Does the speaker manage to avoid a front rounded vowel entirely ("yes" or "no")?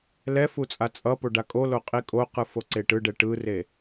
yes